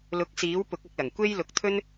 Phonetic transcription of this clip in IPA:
l ʊ˨˥ k̚ s iː˨˥ w p ʊ˨˥ k̚ ɐ˧ k̚ l ɐ˨˩ ŋ kʷ e˥ j l ʊ˨ k̚ t̪ʰ ɵ˥ n

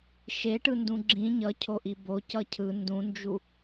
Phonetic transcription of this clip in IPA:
ʃ e ʈ ɯ n d ũ ɡ͡ǁ ĩ ɲ ʌ cʰ o ʔ i b o c ʌ cʰ ɯ n d ũ n d͡ʒ u

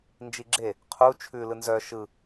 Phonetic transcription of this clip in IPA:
n d͡ʒ i ɡ͡ǁ e | qʰ u t͡ʃʰ ʉ l ɯ n z œ ʃ ɯ

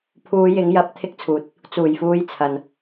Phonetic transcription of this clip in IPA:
pʰ uː˨˧ j ɪ˨˧ ŋ j ɐ˨˥ p̚ t̪ʰ ɪ˧ k̚ t͡sʰ uː˨ t̚ | t͡s uː˨˩ j f uː˨˧ j t͡sʰ ɐ˨ n

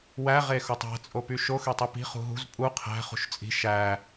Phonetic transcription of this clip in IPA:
w æ ʁ e x o tˤ æ̤ t͡sʼ o p y ʃ o x ø tˤ i p i̤ χ ṳ ɦ ṳ z pʼ u qʰ æ̤ χ ṳ ʃ t͡sʼ i̤ ʃ æ

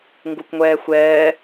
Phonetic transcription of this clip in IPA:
ŋ ɡ u kʷ ŋʷ ɛː xʷ ɛː

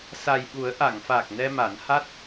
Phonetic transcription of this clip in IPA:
s a˨˩ j ɓ u˨˩˦ ə̯ ʔ a˨˩˨ ŋ f a˨˩ k̚ n ɛ˧ m a˨˩˦ n h a˦˥ t̚

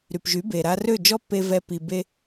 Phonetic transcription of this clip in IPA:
ɾ y˨ p ʒ y˨˦ b e˨ ɾ a˧ r ø˦˨ d͡ʒ ɔ˦ pː e˧ v ɛ˦ p i˧ b e˦

